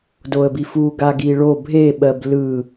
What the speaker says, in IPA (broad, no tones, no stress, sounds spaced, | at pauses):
d o ə̯ b i f u ɡ a ɡ i ɭ o bʱ e ɓ ɜ b l ɯ